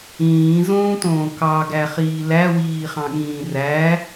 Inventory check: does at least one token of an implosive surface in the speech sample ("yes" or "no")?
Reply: yes